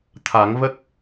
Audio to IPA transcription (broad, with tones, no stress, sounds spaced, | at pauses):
t̪ʰ a˨˩˦ ŋ v ə˦˥ k̚